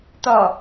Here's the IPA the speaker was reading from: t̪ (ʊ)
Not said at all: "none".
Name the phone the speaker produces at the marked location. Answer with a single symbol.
ɔ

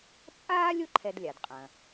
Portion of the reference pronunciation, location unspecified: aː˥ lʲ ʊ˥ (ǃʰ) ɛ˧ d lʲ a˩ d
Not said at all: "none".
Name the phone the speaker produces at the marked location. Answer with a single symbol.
ǃʰ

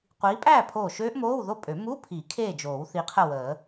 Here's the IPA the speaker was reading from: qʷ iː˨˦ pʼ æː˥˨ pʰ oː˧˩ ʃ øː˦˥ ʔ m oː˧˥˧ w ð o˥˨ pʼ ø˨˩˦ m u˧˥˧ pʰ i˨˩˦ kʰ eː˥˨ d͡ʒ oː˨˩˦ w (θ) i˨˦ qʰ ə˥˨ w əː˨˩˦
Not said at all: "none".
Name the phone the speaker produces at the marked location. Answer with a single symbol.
θ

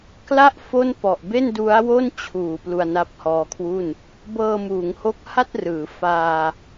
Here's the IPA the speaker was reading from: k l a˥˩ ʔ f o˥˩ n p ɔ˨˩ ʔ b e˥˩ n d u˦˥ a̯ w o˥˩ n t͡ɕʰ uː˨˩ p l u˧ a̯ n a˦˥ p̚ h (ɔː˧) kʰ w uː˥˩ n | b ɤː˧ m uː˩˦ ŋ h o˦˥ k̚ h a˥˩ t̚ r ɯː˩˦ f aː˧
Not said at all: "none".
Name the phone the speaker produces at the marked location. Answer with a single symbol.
ɔː˧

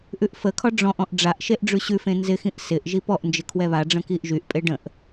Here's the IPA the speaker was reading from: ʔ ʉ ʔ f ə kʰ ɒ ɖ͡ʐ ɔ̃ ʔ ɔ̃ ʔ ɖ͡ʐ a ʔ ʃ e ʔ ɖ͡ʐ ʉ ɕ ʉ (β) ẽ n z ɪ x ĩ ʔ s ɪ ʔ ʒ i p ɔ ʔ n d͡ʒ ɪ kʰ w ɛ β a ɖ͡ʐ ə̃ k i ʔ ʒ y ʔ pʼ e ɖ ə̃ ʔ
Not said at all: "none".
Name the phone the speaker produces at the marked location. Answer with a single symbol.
f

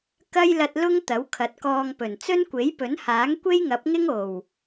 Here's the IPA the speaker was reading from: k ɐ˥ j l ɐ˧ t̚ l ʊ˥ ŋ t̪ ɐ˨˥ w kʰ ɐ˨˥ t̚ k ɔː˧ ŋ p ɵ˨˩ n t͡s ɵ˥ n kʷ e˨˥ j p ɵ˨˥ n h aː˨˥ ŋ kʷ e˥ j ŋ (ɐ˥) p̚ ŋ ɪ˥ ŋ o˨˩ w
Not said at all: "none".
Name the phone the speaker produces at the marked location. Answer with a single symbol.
ɐ˨˥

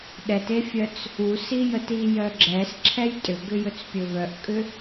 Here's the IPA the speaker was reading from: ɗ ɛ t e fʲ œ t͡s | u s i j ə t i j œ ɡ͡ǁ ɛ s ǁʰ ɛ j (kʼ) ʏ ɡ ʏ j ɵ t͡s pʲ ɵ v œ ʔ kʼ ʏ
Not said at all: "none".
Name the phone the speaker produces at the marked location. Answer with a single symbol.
tʼ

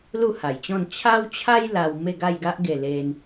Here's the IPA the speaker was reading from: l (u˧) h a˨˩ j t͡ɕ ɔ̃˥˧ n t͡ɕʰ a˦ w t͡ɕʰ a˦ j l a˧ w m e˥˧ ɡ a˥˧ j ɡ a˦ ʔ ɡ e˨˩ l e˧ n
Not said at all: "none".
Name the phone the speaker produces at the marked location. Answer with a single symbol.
u˥˧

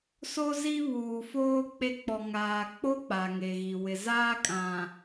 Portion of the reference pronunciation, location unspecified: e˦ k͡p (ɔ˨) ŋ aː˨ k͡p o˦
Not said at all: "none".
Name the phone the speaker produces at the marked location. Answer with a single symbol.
ɔ˨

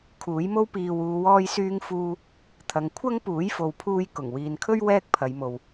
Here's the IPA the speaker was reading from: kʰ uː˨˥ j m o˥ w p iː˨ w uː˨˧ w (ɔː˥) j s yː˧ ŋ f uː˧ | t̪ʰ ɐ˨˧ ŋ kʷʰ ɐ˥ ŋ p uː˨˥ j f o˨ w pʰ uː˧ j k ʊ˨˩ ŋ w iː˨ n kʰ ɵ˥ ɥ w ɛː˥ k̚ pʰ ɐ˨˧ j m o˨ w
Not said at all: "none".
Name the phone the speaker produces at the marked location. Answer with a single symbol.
ɔː˧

